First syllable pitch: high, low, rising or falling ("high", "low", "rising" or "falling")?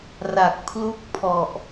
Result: low